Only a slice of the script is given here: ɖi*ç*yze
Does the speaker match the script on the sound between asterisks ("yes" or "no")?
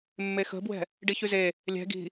yes